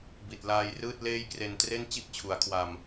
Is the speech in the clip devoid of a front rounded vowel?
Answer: yes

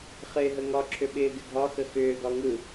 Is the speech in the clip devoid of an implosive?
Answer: no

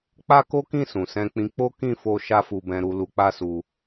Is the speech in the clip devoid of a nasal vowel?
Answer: no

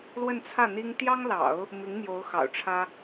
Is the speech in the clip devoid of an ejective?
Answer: yes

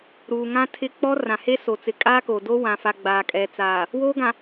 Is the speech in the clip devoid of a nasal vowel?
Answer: no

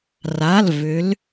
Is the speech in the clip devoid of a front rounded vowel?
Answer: no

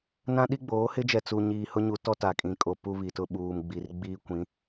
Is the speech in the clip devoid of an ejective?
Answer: no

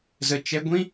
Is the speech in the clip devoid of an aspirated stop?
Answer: yes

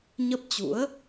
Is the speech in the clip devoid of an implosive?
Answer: yes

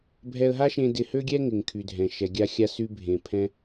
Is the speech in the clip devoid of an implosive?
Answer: yes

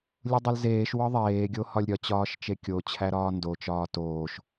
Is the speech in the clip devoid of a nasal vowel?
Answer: yes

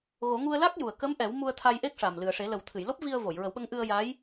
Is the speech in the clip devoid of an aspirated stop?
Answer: no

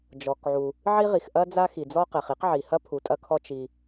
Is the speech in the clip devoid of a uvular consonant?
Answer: no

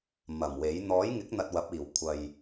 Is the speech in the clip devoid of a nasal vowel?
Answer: yes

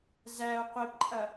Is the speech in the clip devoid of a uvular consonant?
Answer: no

